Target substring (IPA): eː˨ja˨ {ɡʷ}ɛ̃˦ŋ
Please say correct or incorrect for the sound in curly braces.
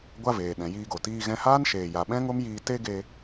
incorrect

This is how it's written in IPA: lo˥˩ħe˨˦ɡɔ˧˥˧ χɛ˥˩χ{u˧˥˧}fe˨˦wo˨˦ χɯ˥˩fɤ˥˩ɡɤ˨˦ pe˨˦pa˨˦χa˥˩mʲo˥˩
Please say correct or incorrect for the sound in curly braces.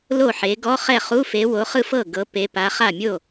correct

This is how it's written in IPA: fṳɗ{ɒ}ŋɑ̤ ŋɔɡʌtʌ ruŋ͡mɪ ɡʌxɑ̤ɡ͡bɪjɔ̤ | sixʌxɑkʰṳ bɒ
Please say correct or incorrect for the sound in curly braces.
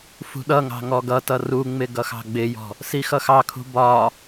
incorrect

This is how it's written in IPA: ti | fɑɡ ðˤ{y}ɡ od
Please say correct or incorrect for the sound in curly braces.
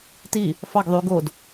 correct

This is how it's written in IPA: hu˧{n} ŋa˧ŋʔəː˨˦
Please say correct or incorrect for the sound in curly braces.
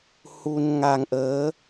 correct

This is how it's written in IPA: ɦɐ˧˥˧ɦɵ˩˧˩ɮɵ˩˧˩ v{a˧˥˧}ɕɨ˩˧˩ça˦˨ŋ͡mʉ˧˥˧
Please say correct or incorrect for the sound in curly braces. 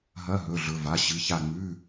incorrect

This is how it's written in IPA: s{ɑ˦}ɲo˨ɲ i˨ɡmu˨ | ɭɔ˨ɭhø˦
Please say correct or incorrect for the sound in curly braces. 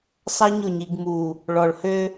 correct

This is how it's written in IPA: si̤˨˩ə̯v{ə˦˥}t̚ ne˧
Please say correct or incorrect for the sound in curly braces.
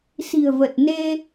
incorrect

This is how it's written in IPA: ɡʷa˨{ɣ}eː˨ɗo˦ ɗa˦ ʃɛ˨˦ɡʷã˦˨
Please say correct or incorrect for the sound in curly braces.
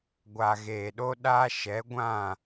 correct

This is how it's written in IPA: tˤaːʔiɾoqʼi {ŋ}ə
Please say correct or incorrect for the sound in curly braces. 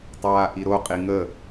correct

